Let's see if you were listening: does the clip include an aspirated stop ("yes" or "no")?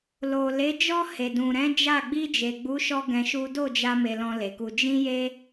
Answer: no